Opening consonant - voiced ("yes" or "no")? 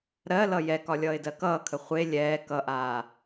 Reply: yes